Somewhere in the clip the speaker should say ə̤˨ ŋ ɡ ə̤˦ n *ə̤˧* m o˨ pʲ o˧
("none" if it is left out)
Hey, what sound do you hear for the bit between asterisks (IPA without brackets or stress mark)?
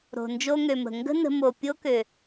ə̤˧